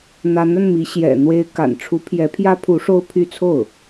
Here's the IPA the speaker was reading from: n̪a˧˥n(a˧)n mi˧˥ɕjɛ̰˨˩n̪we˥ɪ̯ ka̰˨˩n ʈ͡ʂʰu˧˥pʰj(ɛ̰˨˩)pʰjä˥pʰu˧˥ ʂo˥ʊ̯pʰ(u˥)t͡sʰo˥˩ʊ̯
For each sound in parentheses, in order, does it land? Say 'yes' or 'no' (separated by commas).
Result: yes, no, no